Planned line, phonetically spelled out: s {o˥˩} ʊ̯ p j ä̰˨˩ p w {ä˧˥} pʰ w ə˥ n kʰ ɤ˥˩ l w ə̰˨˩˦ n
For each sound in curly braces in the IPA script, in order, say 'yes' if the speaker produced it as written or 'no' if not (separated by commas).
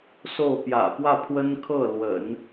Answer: yes, no